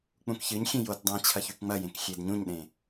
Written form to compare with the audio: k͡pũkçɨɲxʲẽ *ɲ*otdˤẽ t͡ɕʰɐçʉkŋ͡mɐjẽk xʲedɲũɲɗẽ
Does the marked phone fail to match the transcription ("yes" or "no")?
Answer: yes